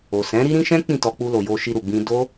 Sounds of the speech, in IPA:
o˨ s ɛ̃˨˦ ɾ i˦ ɾ ĩ˦ ʃ ɛ̃˦ k͡p ĩ˦˨ t ɔ˧ k͡p u˧ l o˨ j o˧ ʃ i˧ ɾ u˨ ɡ͡b ĩ˧ d o˦

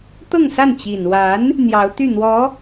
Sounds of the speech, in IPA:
t̪ ɤ˥˧ ŋ s a˥˩ n t͡ɕ i˨˩ n w a˧˥ n | n̪ j ɑ˧˥ ʊ̯ t̪ y˥˩ n̪ w ɔ˧˥

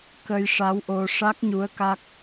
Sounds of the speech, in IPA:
k ə˧ j ʂ a˧˥ w ʔ o˧ ʂ a˦˥ k̚ ɲ u˧˥ ə̯ k a˦˥ k̚

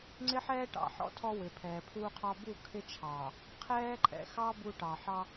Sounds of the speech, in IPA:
ŋ͡ǀ ɪ˦ ħ ɛː˦ ʈ ɑ̰˨ ħ ɔ̰˦ tʰ ɔ˦ w ɪ˨ pʰ ɛː˨ pʰ uː˦ qʰ ɑ˦ b u˦˨ kʰ ɪ˦ t͡ʃʰ ɑː˨ | qʰ ɛː˦ ǃʼ ɛ̰˨ x ɑ˦ b u˦ ʈ ɑ˨ ħ ɑ˦

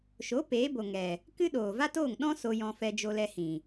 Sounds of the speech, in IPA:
ʃ o˨˦ p eː˨˦ b o˨ ŋ ɛ˨ | k ɨ˦ ɗ oː˨ v a˦ t oː˦˨ ŋ ɗ ɔ̃˦ s o˧ j ɔ̃˧ f ɛ˧ d͡ʒ o˧ l ɛ˧ h ĩ˨

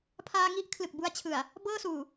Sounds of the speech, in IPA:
pʰ aː˧ ŋ i˥˩ ʔ kʰ l ɯ˨˩ k̚ b u˧ a̯ t͡ɕʰ ɯ˨˩ a̯ | b ɤː˥˩ s uː˨˩

